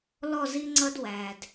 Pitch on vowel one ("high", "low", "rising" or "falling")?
falling